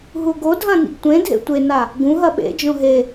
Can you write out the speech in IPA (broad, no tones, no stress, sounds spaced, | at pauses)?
ɦ u ɡ o dʱ ɐ̃ n ḭ ɡ tʷ ẽ dʱ ḛ tʷ e n a | ɡ ũ ɦ ɐ ɓ ḛ d͡ʒ õ ɦ e